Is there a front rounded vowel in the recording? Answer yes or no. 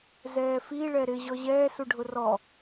no